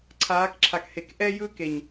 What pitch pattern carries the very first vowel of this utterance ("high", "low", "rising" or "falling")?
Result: rising